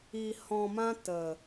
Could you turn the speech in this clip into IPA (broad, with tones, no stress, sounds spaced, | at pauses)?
i˧ h ɔ̃˧ m ã˦ t ə˨